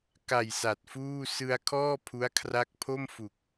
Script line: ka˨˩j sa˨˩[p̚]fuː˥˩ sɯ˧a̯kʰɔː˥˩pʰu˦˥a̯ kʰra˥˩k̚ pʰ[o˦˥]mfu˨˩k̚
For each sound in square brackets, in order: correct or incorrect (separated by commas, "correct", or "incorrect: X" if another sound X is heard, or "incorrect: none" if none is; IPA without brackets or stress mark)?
incorrect: t̚, incorrect: o˥˩